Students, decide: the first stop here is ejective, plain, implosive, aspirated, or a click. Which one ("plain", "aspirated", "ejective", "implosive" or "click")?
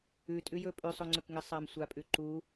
ejective